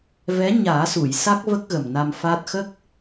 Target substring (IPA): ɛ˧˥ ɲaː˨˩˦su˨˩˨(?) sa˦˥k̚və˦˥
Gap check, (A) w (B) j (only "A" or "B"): B